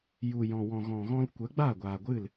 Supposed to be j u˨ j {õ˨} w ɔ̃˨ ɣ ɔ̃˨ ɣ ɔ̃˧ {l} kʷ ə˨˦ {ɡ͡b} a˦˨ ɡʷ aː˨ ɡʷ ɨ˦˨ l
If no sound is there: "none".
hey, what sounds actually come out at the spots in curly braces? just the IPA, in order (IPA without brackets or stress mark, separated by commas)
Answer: ɔ̃˨, l, ɡ͡b